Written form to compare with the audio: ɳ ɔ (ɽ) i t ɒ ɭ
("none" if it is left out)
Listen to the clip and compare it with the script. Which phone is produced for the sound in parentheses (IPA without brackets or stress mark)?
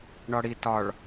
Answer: ɽ